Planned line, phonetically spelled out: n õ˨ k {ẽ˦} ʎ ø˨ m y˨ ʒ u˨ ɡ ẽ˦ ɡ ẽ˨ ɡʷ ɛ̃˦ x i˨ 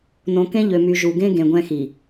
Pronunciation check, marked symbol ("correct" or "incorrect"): correct